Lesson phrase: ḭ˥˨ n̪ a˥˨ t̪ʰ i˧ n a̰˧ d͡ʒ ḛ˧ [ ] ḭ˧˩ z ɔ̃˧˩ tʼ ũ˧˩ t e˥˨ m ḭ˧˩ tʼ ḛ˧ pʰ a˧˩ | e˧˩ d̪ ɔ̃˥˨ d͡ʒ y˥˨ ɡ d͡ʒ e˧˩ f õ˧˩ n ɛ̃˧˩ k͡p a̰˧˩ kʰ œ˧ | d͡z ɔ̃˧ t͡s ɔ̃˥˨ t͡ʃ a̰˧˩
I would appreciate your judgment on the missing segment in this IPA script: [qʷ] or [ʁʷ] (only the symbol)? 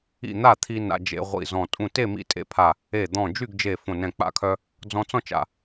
ʁʷ